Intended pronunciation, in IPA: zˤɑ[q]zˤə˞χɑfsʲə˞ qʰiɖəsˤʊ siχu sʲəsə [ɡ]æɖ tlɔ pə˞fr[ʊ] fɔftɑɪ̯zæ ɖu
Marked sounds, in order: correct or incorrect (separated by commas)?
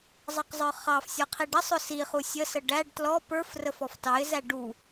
correct, incorrect, incorrect